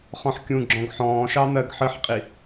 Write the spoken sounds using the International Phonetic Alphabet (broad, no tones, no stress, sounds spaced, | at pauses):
χ ɔ̃ ħ kʲ ũ ɡ͡ǁ ɔ̃ ɡ ħ ɔ̃ː ʃ ɑ n̪ ɜ ɡ ħ ə ħ qʼ i